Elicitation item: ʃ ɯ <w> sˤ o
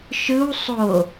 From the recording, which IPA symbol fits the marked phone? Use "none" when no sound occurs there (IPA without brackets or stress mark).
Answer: w